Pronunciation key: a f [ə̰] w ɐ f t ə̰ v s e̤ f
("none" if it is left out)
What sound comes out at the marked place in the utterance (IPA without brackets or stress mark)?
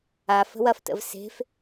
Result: ə̤